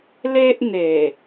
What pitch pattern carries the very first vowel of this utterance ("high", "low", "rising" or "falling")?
high